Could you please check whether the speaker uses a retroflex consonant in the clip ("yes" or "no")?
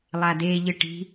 yes